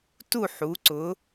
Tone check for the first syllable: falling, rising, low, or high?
falling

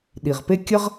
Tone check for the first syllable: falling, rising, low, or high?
low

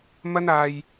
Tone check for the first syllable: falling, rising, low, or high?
high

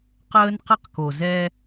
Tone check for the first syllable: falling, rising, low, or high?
high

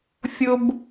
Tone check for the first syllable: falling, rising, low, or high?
high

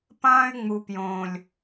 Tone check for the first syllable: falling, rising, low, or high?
high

